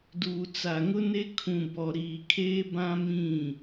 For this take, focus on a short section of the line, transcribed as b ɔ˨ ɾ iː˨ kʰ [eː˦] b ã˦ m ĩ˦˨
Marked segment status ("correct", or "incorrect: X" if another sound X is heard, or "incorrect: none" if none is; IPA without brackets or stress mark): correct